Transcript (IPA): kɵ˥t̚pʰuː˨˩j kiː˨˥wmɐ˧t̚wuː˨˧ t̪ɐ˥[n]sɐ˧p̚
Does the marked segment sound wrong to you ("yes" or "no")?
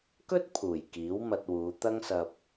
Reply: yes